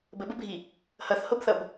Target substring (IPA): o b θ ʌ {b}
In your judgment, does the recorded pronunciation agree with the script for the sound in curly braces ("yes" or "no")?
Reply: yes